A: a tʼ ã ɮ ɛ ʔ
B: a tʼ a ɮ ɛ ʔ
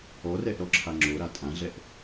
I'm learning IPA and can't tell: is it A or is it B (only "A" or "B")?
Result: A